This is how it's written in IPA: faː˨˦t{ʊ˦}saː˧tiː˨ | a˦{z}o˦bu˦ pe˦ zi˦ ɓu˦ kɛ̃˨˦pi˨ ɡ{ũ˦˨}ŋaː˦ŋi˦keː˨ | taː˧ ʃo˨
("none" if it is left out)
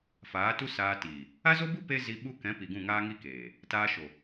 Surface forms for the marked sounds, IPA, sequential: u˦, z, ũ˦˨

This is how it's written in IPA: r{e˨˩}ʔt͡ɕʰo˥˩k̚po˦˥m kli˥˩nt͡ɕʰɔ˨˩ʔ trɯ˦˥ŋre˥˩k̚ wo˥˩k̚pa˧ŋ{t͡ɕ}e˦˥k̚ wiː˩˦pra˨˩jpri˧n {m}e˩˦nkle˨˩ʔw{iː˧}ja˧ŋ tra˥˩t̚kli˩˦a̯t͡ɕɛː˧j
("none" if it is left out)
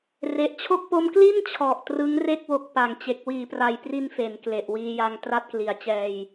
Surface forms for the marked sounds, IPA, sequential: e˨˩, t͡ɕ, f, iː˧

